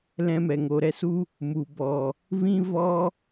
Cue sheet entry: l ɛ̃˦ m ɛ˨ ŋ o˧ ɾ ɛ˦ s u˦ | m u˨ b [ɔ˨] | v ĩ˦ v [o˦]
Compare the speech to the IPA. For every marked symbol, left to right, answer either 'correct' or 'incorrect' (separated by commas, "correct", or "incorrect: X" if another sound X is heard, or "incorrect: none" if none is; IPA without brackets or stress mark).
correct, incorrect: ɔ˦